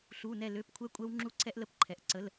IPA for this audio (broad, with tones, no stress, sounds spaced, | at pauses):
ɬ u˧˥˧ n ɛ˥˧ l ø˧˥˧ p kʷʰ ɛ˥ kʷʼ ɛ˥ w ŋ͡ǁ u˥˩ ǀʰ ɛ˥ ʔ l ə˥˩ p ǃʰ ɛ˨ ʔ ǀ ə˧˥˧ l